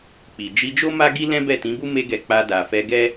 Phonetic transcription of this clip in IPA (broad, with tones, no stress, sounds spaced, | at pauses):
k͡p i˨ d͡ʒ i˧ d͡ʒ o˦ m a˦ ɡ i˦ l ɛ̃˦ b ɛ˦˨ t ĩ˨˦ b u˦ m e˦ ɡ ɛ˧ k͡p a˧ d a˨ f ɛ˧ ɡ ɛ˦